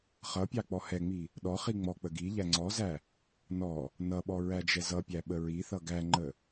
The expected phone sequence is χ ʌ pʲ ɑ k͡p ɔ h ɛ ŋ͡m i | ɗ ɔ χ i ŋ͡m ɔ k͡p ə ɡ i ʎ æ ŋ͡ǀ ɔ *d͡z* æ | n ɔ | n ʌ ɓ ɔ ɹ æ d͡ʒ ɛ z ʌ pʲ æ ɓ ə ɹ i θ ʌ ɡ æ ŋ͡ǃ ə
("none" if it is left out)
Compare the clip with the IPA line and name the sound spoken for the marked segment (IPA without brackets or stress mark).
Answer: z